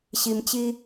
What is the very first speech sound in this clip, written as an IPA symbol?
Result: ɕ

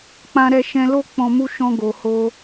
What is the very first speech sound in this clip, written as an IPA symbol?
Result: k͡p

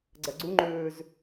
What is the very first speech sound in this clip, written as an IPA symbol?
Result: ɡ͡ǀ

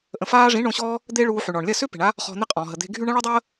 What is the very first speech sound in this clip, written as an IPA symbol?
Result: ʔ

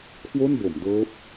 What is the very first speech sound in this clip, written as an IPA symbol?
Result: kʰ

